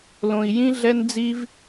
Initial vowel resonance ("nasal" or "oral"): nasal